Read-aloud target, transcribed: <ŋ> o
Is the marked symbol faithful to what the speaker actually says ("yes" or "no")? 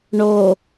no